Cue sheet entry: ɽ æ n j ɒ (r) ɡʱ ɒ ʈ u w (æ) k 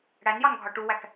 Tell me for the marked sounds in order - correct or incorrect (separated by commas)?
incorrect, correct